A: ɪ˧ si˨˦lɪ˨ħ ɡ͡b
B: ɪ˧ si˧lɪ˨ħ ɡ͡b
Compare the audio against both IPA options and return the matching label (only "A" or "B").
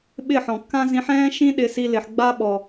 B